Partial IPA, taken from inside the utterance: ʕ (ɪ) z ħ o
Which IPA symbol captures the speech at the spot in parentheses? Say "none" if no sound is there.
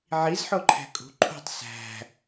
i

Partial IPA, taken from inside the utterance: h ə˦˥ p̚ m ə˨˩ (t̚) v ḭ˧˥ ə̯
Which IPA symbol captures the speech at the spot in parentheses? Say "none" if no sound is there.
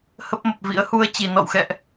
p̚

